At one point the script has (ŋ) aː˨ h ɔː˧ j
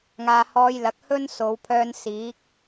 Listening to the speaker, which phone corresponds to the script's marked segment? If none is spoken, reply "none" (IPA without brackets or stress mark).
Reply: ŋ